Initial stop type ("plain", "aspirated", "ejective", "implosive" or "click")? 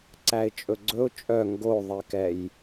click